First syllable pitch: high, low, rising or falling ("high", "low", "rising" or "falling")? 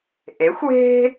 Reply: rising